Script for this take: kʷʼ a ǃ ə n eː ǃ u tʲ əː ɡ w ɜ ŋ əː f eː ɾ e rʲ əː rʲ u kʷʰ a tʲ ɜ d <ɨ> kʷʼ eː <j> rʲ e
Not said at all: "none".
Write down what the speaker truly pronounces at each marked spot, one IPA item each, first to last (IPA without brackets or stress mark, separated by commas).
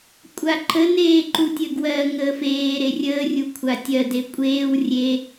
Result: e, w